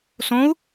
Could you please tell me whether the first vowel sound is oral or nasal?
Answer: nasal